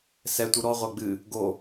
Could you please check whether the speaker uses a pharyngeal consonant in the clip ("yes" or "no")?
no